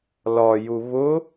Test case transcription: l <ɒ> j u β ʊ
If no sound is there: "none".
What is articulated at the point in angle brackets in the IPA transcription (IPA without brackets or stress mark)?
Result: ɒ